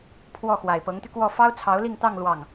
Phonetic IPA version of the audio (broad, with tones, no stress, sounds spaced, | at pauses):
pʰ w ɔ˥˩ x w a˨˩ ɪ̯ p ɤ˧˥ ŋ t̪ y˧ k w ɔ˥˩ f ɑ˥ ʊ̯ t͡sʰ ɑ˧˥ ʊ̯ l i˥˧ ŋ t̪ ɑ˥˧ ŋ l w ɑ˥˩ ŋ